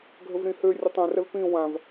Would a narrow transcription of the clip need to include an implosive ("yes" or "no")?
no